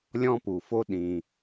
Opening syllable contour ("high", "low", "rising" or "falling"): high